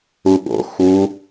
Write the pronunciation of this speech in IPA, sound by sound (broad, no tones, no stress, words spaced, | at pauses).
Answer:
uɠo̰ xu